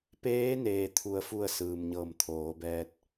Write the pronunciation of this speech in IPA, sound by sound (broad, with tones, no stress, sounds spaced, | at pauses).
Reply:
p eː˧˥ n eː˩ t̪ʰ u˩ ə̯ f u˧˩ ə̯ s ɯː˩ m ɲ ɤː˧˩ m t̪ʰ oː˩˧ b ɛː˧ t̚